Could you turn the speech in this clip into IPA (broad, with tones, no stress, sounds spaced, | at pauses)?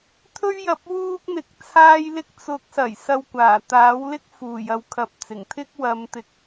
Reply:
t̪ʰ ɵ˥ ɥ j ɐ˨ p̚ w uː˥ k̚ n̪ ɪ˨ k̚ t͡sʰ aː˥ j l ɪ˥ k̚ t͡s ʊ˨˥ k̚ s ɐ˨˩ j s ɐ˧ w kʷ aː˨˩ t̪ aː˨˥ w l ɪ˥ k̚ f uː˨˩ j ɐ˨ w kʰ ɐ˨˥ p̚ t͡s ɪ˨˩ ŋ t̪ʰ ɪ˥ k̚ w ɐ˨˧ m t̪ ɪ˨ k̚